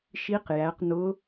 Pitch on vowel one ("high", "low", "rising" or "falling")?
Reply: rising